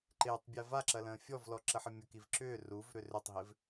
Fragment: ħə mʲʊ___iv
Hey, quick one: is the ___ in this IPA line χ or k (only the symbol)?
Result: k